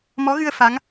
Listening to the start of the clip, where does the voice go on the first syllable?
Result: rising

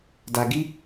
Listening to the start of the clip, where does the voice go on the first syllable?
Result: low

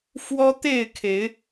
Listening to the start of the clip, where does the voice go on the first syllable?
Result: high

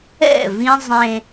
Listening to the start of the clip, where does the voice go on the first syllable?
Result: falling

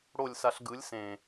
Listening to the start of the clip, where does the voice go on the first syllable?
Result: falling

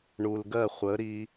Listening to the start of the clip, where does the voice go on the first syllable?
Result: low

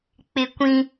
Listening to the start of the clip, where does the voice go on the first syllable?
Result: high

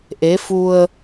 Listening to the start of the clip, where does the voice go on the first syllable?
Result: rising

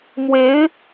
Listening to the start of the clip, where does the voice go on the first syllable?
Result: rising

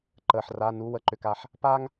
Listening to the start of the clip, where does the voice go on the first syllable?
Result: low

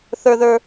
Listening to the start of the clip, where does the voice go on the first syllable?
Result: high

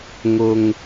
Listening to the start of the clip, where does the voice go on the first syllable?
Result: low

